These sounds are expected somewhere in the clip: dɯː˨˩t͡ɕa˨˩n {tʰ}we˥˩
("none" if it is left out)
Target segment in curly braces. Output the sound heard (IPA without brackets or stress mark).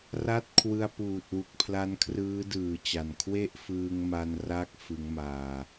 kʰ